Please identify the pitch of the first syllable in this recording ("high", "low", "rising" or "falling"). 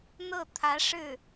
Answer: falling